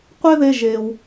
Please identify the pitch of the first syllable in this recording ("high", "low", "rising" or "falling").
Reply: high